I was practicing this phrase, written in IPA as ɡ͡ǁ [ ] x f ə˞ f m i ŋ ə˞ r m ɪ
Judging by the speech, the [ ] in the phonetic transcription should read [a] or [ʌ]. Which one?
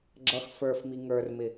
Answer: ʌ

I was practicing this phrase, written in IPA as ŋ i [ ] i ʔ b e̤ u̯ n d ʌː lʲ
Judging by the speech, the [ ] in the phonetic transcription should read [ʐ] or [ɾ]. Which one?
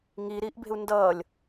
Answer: ɾ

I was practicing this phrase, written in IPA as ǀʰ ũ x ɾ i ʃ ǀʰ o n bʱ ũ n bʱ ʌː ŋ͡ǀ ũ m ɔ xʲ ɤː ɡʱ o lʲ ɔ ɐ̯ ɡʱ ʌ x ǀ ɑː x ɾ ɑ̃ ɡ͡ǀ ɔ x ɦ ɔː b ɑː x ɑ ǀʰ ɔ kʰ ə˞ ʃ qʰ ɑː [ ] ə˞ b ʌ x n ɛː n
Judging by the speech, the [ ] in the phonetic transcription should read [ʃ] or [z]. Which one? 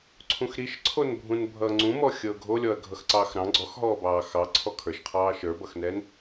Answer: ʃ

